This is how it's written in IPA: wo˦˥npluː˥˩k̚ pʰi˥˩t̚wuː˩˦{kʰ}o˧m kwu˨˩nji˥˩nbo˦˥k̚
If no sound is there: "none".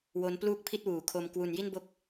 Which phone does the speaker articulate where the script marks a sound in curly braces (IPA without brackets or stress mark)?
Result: kʰ